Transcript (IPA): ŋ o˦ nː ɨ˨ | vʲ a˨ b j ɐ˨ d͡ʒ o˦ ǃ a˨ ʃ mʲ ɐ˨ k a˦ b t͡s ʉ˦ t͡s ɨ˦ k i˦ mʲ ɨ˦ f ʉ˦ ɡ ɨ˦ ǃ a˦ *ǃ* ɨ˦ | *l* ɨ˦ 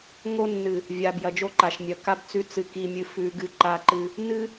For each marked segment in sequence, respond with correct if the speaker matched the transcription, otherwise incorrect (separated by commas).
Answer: correct, incorrect